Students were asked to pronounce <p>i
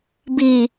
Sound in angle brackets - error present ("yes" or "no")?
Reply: yes